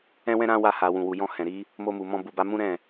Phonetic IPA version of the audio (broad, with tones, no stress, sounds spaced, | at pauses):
ɛ̃˦ w ɛ̃˦ ɾ ã˦ w a˧ h a˨ w ũ˨ w u˨ j ɔ̃˧ h ɛ̃˨ ɾ i˨˦ | m o˧ m u˨ m ɔ̃˧ b u˨ b a˧ m ũ˦ ɾ ɛ̃˦˨